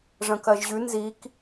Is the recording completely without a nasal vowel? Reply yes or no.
no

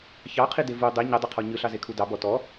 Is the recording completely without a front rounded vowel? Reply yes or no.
yes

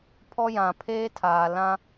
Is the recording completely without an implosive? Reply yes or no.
yes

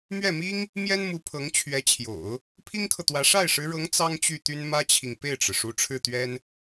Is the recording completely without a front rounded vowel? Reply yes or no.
no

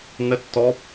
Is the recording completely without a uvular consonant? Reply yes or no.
yes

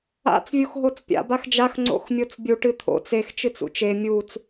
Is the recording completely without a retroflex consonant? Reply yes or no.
no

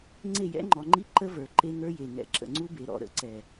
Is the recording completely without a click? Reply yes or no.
no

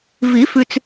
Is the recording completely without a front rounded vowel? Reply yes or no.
yes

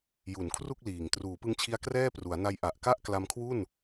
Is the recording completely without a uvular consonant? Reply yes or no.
yes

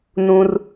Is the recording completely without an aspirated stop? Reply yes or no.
yes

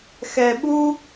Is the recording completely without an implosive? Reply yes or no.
no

